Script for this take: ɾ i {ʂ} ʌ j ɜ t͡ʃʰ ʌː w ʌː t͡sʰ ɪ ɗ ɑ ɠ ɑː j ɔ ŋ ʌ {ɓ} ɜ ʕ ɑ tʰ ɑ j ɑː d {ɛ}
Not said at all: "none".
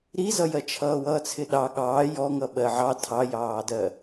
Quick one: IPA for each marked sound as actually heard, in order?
z, ɓ, ɜ

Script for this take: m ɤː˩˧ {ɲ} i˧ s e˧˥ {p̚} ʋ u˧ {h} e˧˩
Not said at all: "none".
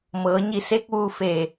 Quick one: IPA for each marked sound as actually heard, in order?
ɲ, k̚, f

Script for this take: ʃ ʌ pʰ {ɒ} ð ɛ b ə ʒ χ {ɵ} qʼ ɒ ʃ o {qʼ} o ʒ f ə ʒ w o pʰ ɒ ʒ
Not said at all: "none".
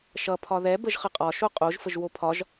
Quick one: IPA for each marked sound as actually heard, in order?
ɒ, ə, qʼ

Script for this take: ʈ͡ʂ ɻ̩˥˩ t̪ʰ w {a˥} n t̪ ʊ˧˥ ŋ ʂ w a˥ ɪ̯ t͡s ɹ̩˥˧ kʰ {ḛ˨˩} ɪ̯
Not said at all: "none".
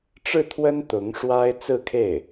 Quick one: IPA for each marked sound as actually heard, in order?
ə˥, e˥˩

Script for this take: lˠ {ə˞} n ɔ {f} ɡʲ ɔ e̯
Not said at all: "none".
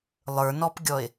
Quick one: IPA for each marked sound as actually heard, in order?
ə˞, p

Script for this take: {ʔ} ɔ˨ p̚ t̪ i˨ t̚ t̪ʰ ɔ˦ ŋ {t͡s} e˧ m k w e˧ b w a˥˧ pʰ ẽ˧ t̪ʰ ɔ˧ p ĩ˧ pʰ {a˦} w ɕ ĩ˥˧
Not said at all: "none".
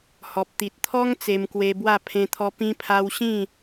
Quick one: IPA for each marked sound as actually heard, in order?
h, t͡s, a˧

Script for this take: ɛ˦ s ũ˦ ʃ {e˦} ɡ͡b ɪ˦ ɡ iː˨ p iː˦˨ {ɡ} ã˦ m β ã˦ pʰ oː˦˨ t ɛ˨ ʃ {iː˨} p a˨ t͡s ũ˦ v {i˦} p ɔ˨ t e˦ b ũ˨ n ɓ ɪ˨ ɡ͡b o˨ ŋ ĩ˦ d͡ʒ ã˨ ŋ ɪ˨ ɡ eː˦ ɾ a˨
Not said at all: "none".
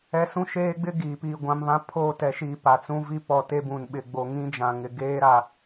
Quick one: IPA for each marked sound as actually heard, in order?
eː˦, ɡʷ, iː˨, i˦

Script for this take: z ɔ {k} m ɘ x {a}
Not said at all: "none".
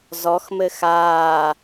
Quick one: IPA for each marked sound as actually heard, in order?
x, aː

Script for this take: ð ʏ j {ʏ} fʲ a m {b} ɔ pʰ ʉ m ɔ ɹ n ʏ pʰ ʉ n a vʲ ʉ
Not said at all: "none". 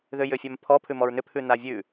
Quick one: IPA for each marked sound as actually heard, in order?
ʏ, pʰ

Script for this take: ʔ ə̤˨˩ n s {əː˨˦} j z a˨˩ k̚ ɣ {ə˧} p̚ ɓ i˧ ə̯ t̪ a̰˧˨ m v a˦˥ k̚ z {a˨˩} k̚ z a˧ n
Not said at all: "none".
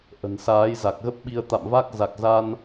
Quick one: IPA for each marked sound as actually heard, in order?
aː˨˦, ə˦˥, a˨˩

